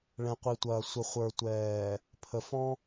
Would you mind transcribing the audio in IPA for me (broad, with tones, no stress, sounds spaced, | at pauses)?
ɭ ɛ̃˨ qʷ i˨ tʷ ɐː˨ sʷ ə˨ χʷ ə˞˨ tʷ ɛː˨ | pʰ ə˨ f ɔ̃˦